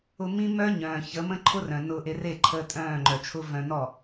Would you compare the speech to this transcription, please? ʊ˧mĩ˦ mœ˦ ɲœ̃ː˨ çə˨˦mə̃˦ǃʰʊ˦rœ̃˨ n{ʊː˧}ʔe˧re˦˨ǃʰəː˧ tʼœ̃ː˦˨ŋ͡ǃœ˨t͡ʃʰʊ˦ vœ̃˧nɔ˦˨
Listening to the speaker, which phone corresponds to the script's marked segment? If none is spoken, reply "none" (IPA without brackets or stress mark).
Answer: ʊː˧